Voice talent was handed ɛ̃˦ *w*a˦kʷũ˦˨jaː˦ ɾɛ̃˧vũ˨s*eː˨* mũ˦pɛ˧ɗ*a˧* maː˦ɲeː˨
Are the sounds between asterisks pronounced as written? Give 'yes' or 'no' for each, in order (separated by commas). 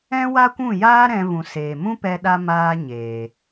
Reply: yes, yes, yes